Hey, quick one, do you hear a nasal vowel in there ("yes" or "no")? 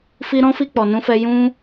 yes